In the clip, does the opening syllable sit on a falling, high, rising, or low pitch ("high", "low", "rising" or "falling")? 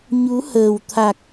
rising